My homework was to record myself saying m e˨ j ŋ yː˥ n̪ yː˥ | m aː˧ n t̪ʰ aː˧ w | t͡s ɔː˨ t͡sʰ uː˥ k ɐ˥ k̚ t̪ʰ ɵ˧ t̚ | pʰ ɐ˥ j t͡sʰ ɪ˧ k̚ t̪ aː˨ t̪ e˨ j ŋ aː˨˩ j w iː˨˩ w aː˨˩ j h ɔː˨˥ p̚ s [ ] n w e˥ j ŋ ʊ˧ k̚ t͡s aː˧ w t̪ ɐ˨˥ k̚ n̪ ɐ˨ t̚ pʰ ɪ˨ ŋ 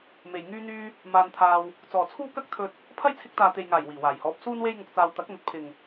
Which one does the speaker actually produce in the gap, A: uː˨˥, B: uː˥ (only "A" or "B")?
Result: B